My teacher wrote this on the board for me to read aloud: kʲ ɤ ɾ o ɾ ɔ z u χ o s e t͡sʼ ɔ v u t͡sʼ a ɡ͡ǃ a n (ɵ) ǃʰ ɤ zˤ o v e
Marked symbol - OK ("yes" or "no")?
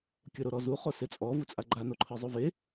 no